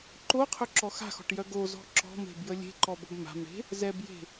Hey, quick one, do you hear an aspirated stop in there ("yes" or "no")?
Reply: yes